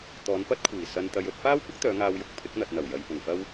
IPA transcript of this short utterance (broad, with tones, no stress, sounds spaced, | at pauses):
t̪ ɔː˨˧ n p ɐ˥ t̚ kʷʰ iː˨˩ s ɐ˧ n t̪ ɐ˧ j ɵ˧ t̚ f aː˥ w kʷ ɪ˥ k̚ t̪ œː˨˧ ŋ aː˧ w j ʊ˨ k̚ pʰ ɪ˨˥ k̚ n̪ ɐ˨ t̚ n̪ ɐ˨˩ w j ɐ˨ j p ʊ˨˩ ŋ f ɐ˥ w